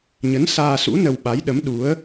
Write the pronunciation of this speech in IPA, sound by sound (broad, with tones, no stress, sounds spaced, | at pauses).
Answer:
ɲ ə˨˦ n s aː˧ s ṵ˧˥ n ə˧ w ɓ a˨˦ j ɗ ə˨˦ m ɗ u˨˦ ə̯